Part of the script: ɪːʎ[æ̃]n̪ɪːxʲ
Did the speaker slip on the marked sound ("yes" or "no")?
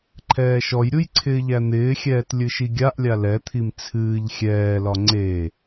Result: yes